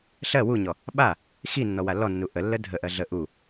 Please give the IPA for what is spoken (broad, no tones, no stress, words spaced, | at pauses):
ɬɜ wuɲɔ | ɓa | xinːɔ walːɔnːu ʔəlːə dʱəʔɜ ɮə ʔu